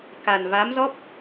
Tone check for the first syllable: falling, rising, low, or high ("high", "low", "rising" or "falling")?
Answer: low